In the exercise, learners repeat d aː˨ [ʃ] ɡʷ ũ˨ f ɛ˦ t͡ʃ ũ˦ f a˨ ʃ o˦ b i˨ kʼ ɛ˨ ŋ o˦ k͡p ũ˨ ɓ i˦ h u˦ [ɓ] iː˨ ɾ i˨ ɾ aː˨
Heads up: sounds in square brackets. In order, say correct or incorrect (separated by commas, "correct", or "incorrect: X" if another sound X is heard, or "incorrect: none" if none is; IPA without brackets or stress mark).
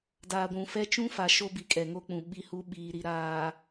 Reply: incorrect: none, correct